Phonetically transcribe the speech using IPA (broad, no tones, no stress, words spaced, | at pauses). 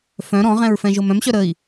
fœ̃ ɾɔ̃ʁɛ̃ɹfɛ̃ʒom œ̃mɕœ ɾəi̯